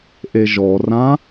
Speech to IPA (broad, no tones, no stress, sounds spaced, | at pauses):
ʔ e ʒ ɔ r ã